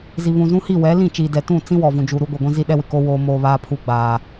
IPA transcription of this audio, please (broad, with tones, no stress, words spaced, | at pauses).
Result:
zi˨βũ˨zũ˦hi˦˨ wɛ˨˦lĩ˦˨t͡ʃiː˨dɛ˨ tũ˦˨t͡sĩ˦wɔ˨ vũ˨d͡ʒu˨ ɾu˦ɡʷi˨ɡʷĩ˦ zi˦ɗɛ˦wɪ˨ko˦ woː˦moː˦ βaː˦pʰu˦ ɡ͡baː˦